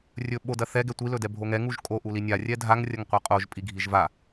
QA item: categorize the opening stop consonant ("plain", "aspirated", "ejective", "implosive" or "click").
implosive